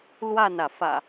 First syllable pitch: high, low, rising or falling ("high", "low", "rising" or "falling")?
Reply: falling